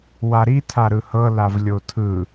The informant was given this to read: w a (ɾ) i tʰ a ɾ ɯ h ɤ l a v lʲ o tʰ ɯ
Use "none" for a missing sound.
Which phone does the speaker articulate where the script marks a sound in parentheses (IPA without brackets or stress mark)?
ɾ